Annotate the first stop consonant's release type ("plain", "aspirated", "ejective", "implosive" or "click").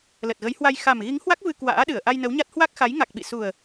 plain